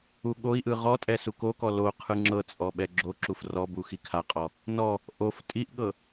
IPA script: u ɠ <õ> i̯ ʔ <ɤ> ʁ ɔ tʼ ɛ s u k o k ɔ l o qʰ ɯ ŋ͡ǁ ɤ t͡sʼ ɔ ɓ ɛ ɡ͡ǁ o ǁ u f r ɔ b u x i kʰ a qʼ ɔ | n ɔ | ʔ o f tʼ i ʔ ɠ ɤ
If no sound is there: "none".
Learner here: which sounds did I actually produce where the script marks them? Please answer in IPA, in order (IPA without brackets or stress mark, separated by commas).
o, ɯ